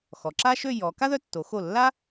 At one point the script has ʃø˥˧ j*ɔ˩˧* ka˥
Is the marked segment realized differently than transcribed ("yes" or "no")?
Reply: no